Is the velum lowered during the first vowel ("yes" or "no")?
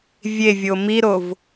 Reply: no